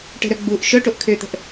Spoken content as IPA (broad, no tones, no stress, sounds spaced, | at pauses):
ʈ ə̤ ɾ œ ɡ͡b u ʔ ʃ œ ʈ o ʔ kʰ ø t̪ ə̤ ʔ